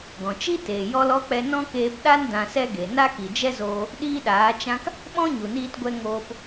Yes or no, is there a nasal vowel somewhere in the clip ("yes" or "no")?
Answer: yes